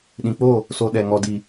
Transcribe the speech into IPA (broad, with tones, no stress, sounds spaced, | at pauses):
ɗ ĩ˨ k͡p o˦˨ | s o˧ ɗ ɛ˨ ŋ ɔ˨ d i˨